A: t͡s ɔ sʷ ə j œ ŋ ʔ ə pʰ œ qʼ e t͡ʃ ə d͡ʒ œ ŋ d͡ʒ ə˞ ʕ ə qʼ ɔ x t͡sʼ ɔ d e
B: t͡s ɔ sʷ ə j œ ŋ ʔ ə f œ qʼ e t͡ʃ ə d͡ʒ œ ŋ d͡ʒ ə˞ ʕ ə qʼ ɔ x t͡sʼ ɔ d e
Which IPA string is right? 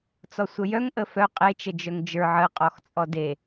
B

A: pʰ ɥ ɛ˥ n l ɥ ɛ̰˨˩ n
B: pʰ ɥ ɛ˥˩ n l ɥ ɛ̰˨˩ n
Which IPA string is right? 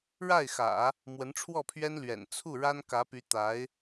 A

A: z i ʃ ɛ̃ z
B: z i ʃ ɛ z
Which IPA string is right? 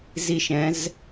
A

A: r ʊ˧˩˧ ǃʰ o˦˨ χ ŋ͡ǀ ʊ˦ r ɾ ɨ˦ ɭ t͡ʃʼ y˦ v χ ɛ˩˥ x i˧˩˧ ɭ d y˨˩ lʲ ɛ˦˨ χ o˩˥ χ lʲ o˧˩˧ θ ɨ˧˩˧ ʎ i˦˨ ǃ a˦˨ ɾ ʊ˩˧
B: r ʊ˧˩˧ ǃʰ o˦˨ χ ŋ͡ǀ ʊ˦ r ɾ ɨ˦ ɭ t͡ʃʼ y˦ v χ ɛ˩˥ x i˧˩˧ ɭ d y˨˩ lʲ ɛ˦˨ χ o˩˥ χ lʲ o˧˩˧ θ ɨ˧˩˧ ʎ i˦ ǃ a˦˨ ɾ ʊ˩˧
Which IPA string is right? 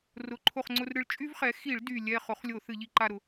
A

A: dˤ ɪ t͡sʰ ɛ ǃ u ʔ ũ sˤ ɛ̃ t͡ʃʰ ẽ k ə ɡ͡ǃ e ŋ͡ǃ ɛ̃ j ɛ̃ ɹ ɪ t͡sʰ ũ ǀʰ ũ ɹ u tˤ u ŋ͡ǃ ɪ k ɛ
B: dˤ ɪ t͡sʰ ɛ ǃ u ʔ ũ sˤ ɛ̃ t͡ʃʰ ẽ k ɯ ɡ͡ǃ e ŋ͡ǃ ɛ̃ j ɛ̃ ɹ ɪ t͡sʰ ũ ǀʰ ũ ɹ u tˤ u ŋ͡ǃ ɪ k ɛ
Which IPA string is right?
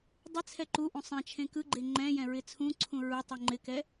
B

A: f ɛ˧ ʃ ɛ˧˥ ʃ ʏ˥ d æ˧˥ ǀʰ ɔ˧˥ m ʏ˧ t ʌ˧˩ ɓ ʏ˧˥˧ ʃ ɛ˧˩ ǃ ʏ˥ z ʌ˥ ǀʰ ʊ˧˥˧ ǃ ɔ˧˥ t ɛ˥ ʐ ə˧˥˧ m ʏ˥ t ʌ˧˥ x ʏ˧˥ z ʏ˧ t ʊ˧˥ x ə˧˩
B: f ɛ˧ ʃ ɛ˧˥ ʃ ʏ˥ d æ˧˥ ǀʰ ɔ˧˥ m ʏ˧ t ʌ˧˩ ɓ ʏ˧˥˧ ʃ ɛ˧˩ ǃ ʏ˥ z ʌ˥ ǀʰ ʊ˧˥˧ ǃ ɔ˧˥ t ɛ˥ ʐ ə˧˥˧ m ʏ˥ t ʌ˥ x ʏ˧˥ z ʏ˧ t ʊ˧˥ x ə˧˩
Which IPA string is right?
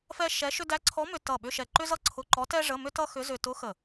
B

